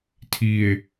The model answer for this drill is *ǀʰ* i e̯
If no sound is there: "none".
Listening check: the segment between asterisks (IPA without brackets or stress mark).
tʰ